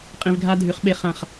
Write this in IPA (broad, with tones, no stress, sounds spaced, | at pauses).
qʼ ĩ˧ v ɡʱ a˦ dʱ ʉ˨˦ χ ɓ e˦˨ χ ã˦˨ χ